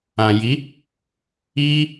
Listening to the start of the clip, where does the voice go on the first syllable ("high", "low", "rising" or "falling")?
low